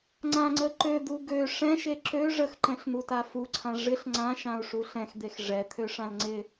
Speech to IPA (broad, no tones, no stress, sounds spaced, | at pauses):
ŋ͡ǀ ã ŋ͡ǀ ə ǃ ø d̪ u ɡ ø ʂ ɛ̃ ʃ e ǁ ø ʐ ə x ǃ ɛ̃ ɬ n̪ u t a f u ǀʰ ã ʐ ɪ ɬ ŋ͡ǀ ã ʃ ã u̯ ʂ u ɬ ɛ̃ x d̪ e x ʐ ɛ t̪ʰ ø ʂ ã l ŋ͡ǀ ɪ